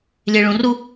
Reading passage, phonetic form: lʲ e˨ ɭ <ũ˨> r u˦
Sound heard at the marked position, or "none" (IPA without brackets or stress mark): ũ˨